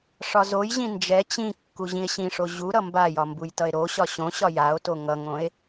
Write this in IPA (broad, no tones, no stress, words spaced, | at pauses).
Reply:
ʂɒzojʑĩ nd͡ʒɛ t͡ɕĩ kːuʑĩe̯ɕĩʂo ʑu ɾʌmbajɒ mbujtʌe̯ɾoɕɒ ɕõɕɒ jao̯to ŋʌŋõe̯